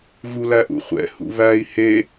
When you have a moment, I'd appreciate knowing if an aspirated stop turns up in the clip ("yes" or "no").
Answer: no